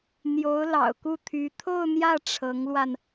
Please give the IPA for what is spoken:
n̪ j o˧˥ ʊ̯ l ɑ̰˨˩ ʊ̯ k u˥˩ t̪ʰ y˧˥ t̪ʰ o˥˧ ʊ̯ n̪ j ä˥˩ ʈ͡ʂʰ ɤ˧˥ ŋ l w a˧ n

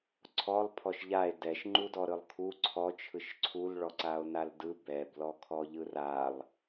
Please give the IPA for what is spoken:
ǀʰ ɔ lˠ pʰ ɔ ʃ ʎ a e̯ d ɛ ʃ ŋ͡ǃ u d ɔ ɾ ɯ lˠ kʰ u ǀʰ ɔ t͡ʃʰ ɯ ʃ ǀʰ u l ɭ ɔ ǀ a o̯ n a l d ɯ b ɛ b l ɔ kʰ ɔ ʎ ɯ r a lˠ

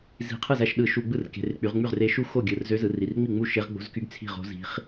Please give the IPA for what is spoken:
z i̤˧˩˧ qʰ ɯ˥˩ z æ˥˩ ʃ ɗ ɯ˧˩˧ ʃ u˧˩˧ ɡ͡b ɯ˥˩ r k e̤˩˧˩ r k͡p y˩˧ ʁ ŋ͡m y˥˩ ʁ r e˧˥ ʃ u˥˩ x o˥˩ ɡʲ ɯ˩˧˩ r z ø˧˥ z ɯ˩˧ r i˩˧˩ r ŋ͡m i˥˩ ŋ͡m u˥˩ ʃ e˧˥ ʁ ɡ͡b o̤˧˥ z k y˧˥ ɡ t͡sʰ i̤˥˩ ʁ o̤˧˥ z i̤˧˥ χ

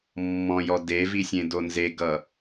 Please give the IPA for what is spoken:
mː ɔ̃ j ɔ d e v i sʲ ẽ d o n z e ɡ ʌ

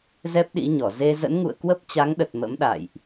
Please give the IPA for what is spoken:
z ɛ˦˥ p̚ ɗ ḭ˧˥ ɲ ɔ˧˩ z e˧ z ə̰˧˥ n ŋ ṵ˧˨ ə̯ k w ə˦˥ p̚ t͡ɕ a˨˦ ŋ ɗ ə˨˩ t̚ m ə̰˧˥ m ɗ a̰˧˨ j ʔ

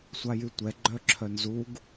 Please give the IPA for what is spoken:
sʷ a j y tʷ ɛ ɡ͡ǃ œ ǁʰ œ n z u ɡ

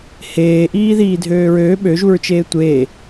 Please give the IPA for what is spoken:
h eː ʔ iː ð iː dʱ øː ɹ øː ɓ ø ʒ u ɹ t͡ʃ eː tʷ eː

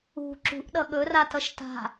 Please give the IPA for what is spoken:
ṳ ǁ ṳ ʔ ɗ ʌ ɠ ɵ r a t ʌ ʃ t a̤

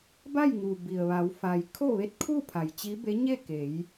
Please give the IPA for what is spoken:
b a˥˨ j ŋ uː˩ b i˩ ə̯ ʋ a˩˧ w f a˩ j kʰ o˥˨ ʋ e˧˥ t̚ kʰ uː˥˨ pʰ a˩ j t͡ɕ i˧˥ b e˧˥ ɲ e˥˨ k e˩˧ j

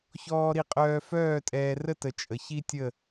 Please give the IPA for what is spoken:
ç ɔː˥ ɾ i˥˧ qʼ œː˥ f œː˥˧ tʼ ɛː˧ r ə˥˧ t ə˧ t͡ʃʼ ə˧ ç i˥ tʲ ə˥˧

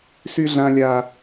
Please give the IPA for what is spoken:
s y˦ ɮ ã˦ lʲ a˦

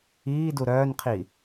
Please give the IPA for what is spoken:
iː d u ɾ œː n qʰ i

